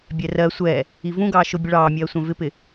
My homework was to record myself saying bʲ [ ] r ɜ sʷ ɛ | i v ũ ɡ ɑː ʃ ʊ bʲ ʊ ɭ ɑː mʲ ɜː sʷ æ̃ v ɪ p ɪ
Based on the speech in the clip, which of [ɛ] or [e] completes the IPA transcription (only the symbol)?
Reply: ɛ